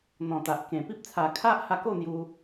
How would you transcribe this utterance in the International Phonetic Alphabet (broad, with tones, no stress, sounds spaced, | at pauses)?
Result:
n̪ ɔ̃˨˩ t̪ a˨ ʔ k ẽ˨˩ p i˦ p̚ t͡sʰ a˨˩ kʰ a˦ ʔ h a˧ k o˥˧ n̪ j u˧